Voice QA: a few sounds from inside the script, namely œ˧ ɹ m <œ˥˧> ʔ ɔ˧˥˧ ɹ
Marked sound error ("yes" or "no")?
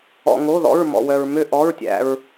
yes